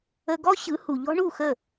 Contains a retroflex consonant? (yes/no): yes